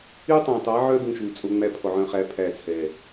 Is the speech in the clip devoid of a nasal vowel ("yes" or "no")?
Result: no